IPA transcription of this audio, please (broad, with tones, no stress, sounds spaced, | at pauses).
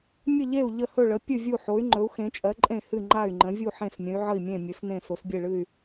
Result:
mʲ ə˥˩ ʎ e˥˩ u̯ ʎ ə˥˩ h ɵ˥˩ ɭ ə˩˥ pʲ ɨ˥˩ vʲ u˥˩ ħ o˩˥ y̯ ŋ͡ǃ ɵ˩˥ u̯ x ẽ˩˥ t͡ʃʼ ɜ˩˥ ǃʼ ẽ˥˩ h ɨ˥˩ ŋ͡ǃ a˥˩ y̯ ŋ͡ǃ ə̃˩˥ vʲ u˥˩ ħ ẽ˥˩ s mʲ ə̃˩˥ y̯ ʕ ə˥˩ i̯ mʲ ẽ˥˩ mʲ ɨ˩˥ s n ẽ˥˩ s o˩˥ s bʲ e˥˩ ɭ ɨ˥˩ y̯